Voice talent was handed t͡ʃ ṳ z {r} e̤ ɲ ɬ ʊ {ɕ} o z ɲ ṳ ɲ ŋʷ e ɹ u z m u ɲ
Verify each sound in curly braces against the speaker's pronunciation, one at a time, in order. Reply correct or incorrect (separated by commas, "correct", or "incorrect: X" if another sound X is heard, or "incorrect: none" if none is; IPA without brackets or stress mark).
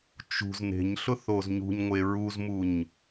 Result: incorrect: n, incorrect: θ